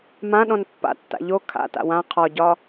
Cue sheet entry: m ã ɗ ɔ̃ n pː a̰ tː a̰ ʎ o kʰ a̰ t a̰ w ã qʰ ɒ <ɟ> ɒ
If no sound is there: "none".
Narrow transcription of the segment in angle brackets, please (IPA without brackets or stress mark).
ɟ